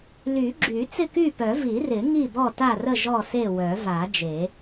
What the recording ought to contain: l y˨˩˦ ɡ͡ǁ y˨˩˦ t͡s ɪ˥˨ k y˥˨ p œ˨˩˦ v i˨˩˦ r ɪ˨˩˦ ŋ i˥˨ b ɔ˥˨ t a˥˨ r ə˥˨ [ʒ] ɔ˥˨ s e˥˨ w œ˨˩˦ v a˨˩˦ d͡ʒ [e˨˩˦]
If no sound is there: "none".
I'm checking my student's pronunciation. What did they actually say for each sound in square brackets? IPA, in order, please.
ʒ, e˨˩˦

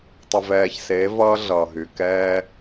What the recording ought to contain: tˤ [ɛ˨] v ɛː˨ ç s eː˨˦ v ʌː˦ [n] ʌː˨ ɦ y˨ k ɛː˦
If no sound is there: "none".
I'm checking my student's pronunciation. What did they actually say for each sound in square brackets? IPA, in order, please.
ʏ˨, ɮ

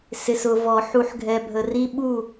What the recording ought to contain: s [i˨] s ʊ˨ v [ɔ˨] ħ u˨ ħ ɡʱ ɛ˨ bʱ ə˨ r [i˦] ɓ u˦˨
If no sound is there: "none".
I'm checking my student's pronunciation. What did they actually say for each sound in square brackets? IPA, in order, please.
ɪ˨, ɔ˨, i˦

